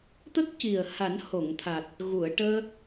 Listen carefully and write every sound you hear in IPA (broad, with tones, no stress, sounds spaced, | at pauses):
t̪ ə˦˥ k̚ c i˨˩ ə̯ h a˨˩˦ n h o˨˩˨ ŋ t̪ʰ a˨˩ t̚ | ɣ u˨˩˨ ə̯ ʈ əː˧